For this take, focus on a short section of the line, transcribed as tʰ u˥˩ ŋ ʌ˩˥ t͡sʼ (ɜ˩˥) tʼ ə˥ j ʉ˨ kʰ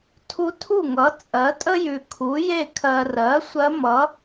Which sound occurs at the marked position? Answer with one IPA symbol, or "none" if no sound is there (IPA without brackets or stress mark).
ɜ˩˥